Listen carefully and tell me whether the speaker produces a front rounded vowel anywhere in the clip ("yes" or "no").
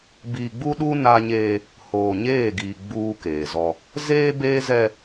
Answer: no